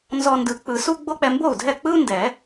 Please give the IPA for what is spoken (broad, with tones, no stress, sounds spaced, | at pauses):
n z ɔ˧ n d ɯ˨˩˦ k͡p ɯ˨˩˦ s u˥ ɡ͡b o˥ k͡p ɛ˧ m b o˥˩ u̯ dʱ ɛ˥˩ k͡p ɯ˥ u̯ n d ɛ˨˩˦